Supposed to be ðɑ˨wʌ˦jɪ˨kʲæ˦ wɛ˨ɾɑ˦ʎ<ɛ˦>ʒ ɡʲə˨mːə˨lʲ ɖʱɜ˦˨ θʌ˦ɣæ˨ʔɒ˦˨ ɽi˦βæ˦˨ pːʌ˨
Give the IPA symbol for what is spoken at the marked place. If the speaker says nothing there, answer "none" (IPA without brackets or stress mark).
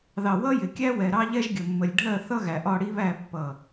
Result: ɛ˦